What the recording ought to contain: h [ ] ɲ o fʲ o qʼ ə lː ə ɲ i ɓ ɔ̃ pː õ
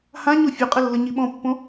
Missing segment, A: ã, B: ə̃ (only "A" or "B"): A